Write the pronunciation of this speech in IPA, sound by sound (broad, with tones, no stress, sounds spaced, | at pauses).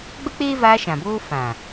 ɡ͡b ə˦ k͡p eː˦ v aː˧ ʃ ã˨ b oː˦ f ã˨